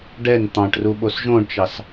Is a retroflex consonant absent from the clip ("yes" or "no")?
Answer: no